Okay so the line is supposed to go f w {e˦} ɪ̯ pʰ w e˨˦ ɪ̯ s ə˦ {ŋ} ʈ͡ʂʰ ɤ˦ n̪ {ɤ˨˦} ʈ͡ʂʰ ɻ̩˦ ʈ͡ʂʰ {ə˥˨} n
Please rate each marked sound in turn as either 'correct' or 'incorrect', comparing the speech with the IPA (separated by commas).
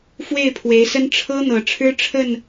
incorrect, incorrect, incorrect, correct